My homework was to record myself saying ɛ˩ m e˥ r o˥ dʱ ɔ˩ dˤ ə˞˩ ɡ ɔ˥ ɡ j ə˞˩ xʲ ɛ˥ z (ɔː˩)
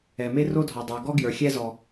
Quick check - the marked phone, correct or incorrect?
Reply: incorrect: ɔ˩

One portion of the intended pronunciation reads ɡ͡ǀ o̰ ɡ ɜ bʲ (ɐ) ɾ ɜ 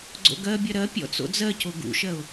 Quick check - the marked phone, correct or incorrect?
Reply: correct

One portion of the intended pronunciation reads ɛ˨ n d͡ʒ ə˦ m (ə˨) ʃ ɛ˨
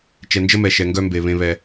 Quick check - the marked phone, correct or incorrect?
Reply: incorrect: ɛ˨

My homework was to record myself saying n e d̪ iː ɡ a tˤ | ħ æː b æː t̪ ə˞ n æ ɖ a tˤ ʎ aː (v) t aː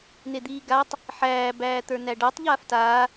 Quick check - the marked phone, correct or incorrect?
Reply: incorrect: f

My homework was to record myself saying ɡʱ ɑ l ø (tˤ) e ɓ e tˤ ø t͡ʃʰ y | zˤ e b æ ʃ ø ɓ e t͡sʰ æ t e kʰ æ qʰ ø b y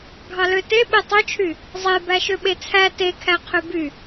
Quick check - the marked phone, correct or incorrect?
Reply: incorrect: t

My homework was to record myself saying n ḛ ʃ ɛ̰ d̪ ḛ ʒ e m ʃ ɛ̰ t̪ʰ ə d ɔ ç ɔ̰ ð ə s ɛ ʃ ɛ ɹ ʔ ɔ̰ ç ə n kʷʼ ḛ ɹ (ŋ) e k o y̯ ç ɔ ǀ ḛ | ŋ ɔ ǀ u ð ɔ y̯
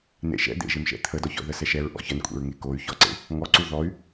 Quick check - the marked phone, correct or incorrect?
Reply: correct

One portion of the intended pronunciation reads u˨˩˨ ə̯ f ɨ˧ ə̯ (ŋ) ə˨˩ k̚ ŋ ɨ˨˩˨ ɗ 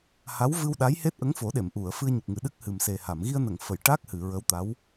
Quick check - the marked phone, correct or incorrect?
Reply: incorrect: ɲ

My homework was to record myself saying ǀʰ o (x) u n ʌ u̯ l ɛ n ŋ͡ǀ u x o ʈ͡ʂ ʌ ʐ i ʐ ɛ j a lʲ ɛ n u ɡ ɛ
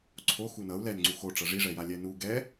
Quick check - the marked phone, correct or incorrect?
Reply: correct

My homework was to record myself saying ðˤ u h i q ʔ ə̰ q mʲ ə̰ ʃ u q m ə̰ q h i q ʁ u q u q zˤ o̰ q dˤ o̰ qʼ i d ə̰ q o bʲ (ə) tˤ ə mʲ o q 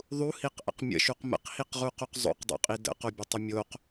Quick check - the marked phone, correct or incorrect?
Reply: correct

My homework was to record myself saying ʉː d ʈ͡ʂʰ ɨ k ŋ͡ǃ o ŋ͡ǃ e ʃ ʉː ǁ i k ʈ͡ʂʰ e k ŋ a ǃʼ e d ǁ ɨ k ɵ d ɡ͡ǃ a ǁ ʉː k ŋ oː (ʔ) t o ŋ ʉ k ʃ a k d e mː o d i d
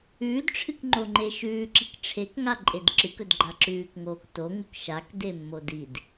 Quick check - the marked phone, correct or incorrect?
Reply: incorrect: k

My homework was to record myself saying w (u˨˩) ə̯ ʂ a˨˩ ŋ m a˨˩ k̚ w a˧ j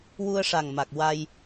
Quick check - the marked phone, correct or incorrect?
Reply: incorrect: u˧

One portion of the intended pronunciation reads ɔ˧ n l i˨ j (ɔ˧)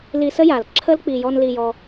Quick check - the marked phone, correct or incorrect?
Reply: correct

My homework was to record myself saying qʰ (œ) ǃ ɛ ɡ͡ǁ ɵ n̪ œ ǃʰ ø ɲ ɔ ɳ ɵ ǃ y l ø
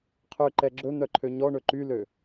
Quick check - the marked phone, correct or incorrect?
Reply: incorrect: ø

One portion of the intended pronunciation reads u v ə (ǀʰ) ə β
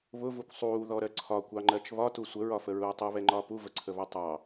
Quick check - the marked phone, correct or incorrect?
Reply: correct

